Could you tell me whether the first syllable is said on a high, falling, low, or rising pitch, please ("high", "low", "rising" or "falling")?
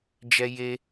high